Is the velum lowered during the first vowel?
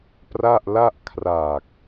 no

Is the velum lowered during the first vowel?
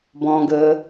yes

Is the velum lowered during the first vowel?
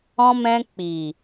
yes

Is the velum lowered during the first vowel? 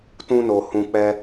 yes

